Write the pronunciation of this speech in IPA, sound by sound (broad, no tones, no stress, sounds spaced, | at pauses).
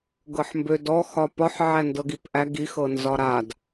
ɡ ɤ ħ m b ø d ɔ x ɒ p ɒ ħ ʕ æ n d ɤ ɡ i p ʔ æ ɡ i x ɤ n z ɒ ɾ a d